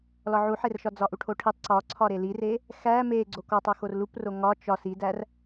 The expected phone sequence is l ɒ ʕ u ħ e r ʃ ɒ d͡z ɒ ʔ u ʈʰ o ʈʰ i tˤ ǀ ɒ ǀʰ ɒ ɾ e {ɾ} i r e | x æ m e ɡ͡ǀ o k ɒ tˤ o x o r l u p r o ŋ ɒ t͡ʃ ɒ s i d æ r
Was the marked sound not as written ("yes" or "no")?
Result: yes